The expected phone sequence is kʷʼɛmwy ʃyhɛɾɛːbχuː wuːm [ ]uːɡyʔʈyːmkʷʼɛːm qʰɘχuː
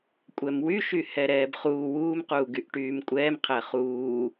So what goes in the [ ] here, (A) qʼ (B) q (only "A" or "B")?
B